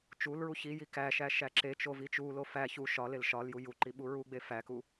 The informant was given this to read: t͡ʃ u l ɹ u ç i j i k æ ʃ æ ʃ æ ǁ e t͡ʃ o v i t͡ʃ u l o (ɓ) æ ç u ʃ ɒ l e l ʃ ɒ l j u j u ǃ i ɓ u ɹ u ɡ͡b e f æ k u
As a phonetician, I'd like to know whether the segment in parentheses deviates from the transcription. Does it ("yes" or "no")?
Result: yes